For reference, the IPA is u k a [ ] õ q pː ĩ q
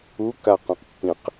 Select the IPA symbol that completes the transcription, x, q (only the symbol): q